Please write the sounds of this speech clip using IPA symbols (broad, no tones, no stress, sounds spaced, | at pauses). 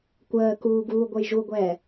kʷ əː k uː ɡ uː ɡʷ ə j ʒ u ɡʷ ɛː